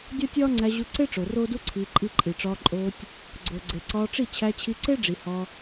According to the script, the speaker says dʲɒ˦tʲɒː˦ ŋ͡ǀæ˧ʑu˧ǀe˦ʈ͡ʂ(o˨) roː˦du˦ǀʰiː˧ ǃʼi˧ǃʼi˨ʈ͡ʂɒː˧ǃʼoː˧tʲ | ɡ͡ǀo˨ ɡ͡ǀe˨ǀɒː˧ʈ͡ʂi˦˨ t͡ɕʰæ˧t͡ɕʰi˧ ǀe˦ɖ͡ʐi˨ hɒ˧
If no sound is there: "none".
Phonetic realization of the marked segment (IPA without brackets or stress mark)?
o˨